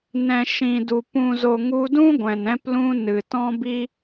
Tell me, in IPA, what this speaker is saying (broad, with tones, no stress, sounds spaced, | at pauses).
n ɛ̃˨ ʃ ĩ˨ d u˨ p ũ˨ z o˨ ŋ u˧ d ũ˦ ɡʷ ɛ̃˨ n ɛ̃˦ p l ũ˦ n ɨ˨ t ɔ̃˦ b i˦